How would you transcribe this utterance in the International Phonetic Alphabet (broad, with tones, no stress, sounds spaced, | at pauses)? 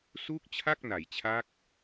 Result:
s uː˥˩ k̚ t͡ɕʰ a˥˩ k̚ n a˩˦ j t͡ɕʰ a˦˥ k̚